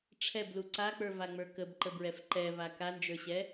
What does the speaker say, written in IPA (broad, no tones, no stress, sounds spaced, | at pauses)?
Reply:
ʈ͡ʂʰ ɛ b l u ǀ a k͡p ə˞ v a ŋ͡m ə˞ k ə b ǃ ə b ɹ ɛ f ǃ ɛ v a k a n d͡ʒ ə˞ ɕ ɛ